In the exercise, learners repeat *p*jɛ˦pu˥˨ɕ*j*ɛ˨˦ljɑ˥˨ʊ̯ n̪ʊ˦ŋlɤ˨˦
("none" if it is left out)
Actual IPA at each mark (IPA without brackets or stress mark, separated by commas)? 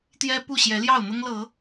t̪, j